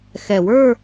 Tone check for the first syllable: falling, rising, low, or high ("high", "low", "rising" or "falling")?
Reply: low